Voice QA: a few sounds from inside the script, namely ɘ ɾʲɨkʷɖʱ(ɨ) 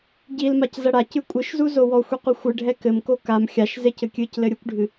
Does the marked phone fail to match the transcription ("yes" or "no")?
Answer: no